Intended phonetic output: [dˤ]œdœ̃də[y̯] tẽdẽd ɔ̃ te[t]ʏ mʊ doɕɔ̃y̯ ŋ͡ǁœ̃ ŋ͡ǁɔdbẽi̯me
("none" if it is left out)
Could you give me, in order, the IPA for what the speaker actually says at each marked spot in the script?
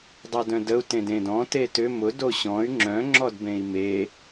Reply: dˤ, u̯, t

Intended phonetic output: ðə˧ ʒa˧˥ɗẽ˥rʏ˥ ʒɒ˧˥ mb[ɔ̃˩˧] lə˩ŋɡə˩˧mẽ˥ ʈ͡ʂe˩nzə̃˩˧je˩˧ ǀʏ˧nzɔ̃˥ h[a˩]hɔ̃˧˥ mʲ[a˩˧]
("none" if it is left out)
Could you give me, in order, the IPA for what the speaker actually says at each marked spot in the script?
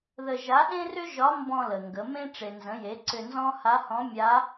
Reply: ɔ̃˧, a˧˥, a˧˥

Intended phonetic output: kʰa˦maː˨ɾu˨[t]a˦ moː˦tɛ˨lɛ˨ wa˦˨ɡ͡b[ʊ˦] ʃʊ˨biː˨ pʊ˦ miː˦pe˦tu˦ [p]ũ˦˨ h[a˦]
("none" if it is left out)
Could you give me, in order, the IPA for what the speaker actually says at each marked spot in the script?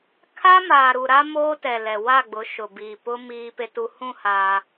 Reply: ɾ, ʊ˨˦, h, aː˦

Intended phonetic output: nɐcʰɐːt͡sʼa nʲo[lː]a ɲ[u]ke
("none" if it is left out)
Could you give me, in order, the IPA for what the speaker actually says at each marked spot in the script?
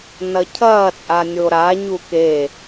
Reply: ɾ, u

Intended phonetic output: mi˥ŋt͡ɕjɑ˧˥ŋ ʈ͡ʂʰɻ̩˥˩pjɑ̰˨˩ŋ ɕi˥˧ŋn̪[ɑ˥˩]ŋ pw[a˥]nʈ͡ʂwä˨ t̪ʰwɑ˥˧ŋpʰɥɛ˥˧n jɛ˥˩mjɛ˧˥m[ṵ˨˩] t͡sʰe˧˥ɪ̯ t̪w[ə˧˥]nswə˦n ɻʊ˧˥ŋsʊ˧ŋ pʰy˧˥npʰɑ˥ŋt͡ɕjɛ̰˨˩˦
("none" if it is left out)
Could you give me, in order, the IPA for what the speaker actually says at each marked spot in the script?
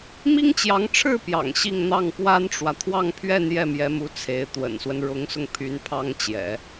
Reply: ɑ˥˩, a˥, u˧˥, ə̰˨˩

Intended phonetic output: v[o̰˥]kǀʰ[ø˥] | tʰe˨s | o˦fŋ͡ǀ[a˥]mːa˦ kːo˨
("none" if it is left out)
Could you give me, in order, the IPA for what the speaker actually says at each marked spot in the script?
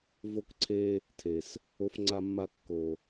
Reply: o˥, e˥, a˦

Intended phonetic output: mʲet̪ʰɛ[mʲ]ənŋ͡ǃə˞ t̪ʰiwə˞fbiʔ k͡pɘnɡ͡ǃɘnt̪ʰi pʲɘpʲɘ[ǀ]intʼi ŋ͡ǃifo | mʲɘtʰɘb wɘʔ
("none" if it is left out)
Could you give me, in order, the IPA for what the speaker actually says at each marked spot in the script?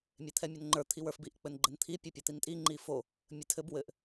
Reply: mʲ, t̪

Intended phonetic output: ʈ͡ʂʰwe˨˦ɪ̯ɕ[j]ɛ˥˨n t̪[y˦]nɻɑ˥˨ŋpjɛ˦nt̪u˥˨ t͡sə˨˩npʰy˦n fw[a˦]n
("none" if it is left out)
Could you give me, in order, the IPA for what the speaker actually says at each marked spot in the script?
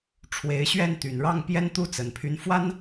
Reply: ɥ, y˨˩, a˦

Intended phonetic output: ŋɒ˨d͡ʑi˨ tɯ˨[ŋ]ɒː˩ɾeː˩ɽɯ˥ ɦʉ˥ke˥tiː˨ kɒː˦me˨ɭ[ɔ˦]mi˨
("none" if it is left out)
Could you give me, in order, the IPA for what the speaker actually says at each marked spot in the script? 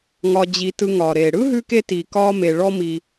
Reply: ŋ, ɔ˦

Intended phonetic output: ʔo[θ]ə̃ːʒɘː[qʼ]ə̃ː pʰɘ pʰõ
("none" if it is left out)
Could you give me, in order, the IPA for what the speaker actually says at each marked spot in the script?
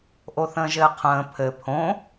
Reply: θ, qʰ

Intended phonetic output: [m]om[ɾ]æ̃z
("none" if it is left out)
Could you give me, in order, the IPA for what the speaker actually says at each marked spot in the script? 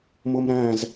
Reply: m, ɾ

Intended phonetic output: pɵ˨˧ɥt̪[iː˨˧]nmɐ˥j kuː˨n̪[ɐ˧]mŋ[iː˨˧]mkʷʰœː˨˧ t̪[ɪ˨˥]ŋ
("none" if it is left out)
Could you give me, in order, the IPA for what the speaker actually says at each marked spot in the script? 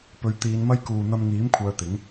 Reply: iː˨˧, ɐ˧, iː˨˥, ɪ˨˥

